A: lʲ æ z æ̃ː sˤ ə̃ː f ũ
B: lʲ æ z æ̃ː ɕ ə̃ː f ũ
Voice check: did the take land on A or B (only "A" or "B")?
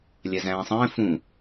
A